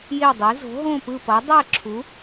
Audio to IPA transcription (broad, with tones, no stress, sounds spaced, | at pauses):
j e˥˧ dˤ i˧˥ z o̤˧˥ ɦ õ˥˧ p ɯ˥˧ p ʌ˧˥ dˤ ɛ˥˧ ǁʰ u˧˥